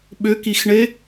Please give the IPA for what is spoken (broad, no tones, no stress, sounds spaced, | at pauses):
ɓ ʏ k i x ɳ e